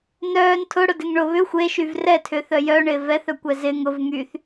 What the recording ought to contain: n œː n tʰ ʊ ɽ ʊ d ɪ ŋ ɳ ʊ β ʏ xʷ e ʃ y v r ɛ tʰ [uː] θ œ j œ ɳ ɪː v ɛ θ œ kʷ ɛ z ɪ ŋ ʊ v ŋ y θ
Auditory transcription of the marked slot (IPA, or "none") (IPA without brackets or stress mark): ʏː